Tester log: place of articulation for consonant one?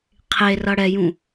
uvular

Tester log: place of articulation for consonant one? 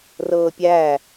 alveolar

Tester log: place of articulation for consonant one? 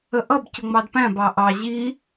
glottal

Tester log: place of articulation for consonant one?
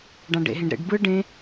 retroflex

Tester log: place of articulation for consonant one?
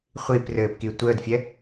uvular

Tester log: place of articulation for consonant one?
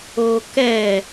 velar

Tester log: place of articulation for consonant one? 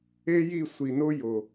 palatal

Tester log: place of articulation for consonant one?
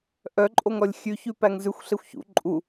glottal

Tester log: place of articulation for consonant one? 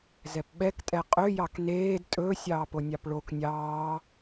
alveolar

